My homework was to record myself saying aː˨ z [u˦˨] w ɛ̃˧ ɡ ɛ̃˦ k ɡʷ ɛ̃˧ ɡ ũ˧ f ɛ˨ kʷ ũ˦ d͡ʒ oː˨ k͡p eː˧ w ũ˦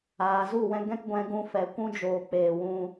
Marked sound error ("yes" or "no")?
no